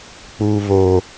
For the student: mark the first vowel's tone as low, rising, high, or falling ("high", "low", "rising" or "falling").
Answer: high